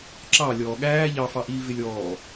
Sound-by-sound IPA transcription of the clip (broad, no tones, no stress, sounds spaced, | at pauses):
ǁ ɑ lʲ ɔː ɠ æː ʎ ɑ f ɑ ʔ iː v ɪ lʲ ɔː